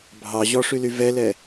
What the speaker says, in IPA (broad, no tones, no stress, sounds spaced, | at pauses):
bʱ ɑ ʑ ɔ ʂ y l y v ɛ l ɛ